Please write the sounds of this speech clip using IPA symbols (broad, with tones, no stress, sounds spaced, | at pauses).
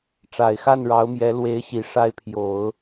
ʈ͡ʂ a˨˩ ɪ̯ x a˥˩ n ɻ ɑ˧˥ ʊ̯ m j ɛ˧˥ l w e˧˥ ɪ̯ ɕ i˨˩ ʂ a˧˥ ɪ̯ pʰ j o˨˩˦ ʊ̯